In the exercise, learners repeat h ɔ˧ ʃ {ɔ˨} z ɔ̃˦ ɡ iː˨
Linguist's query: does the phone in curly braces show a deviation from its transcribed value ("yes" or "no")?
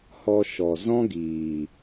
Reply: no